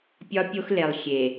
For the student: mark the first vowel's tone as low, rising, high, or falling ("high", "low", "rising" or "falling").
high